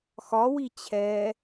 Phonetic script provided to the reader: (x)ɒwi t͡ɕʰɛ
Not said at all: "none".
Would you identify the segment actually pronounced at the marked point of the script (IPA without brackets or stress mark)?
x